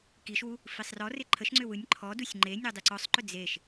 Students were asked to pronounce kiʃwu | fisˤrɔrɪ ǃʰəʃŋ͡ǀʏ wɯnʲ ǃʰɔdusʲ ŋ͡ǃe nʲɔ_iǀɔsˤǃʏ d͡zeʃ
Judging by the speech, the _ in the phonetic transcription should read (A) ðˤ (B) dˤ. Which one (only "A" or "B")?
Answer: B